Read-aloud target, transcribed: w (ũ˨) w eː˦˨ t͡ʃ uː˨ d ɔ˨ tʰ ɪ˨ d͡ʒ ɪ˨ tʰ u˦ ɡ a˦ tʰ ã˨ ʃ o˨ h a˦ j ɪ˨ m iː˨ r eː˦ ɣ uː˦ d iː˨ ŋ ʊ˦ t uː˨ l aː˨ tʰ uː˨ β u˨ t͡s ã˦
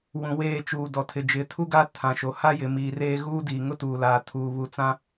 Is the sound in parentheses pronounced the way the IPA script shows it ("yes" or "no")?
yes